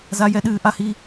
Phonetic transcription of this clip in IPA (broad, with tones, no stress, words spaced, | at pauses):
za˦jɛ˦ ɗɨː˦ʔa˦hi˦